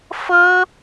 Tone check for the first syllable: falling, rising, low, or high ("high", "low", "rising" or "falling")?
high